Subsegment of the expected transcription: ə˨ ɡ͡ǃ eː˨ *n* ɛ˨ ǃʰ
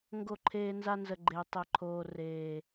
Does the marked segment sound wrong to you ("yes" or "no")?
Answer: yes